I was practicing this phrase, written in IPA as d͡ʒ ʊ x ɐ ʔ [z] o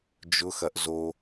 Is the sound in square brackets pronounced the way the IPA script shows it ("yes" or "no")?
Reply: yes